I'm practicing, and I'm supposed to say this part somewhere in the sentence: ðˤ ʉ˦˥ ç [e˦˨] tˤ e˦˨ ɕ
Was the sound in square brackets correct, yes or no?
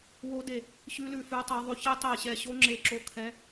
no